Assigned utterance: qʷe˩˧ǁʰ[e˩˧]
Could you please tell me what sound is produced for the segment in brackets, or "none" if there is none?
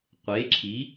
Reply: i˩˧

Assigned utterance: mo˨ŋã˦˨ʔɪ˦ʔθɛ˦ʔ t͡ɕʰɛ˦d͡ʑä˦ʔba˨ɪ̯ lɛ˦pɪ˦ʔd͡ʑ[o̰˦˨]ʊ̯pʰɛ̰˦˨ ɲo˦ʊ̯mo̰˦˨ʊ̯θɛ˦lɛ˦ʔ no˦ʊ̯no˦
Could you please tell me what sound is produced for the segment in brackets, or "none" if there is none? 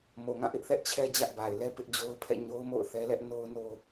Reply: o˦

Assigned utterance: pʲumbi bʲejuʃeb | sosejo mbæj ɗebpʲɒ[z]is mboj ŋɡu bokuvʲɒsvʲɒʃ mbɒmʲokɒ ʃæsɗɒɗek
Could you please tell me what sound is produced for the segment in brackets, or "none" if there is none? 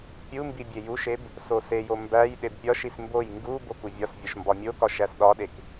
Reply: ʃ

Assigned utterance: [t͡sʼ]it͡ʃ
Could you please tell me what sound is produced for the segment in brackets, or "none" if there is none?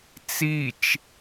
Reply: t͡s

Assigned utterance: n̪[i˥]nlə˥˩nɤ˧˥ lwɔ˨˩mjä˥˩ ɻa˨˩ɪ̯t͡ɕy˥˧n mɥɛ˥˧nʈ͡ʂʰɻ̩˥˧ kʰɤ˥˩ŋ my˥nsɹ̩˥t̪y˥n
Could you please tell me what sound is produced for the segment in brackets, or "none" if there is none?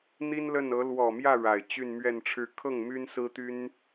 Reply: i˥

